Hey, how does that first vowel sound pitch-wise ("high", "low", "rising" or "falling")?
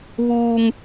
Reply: high